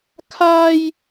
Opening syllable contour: high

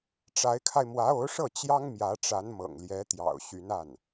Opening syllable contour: rising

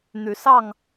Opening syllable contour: rising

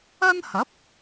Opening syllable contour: high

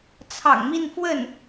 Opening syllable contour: low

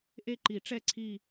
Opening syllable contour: falling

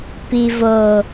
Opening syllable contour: low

